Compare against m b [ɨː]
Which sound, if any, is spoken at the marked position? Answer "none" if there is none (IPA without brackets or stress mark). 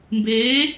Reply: eː